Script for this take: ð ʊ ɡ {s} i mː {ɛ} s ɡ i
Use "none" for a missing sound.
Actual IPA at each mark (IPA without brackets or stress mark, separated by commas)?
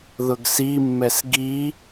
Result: s, ɛ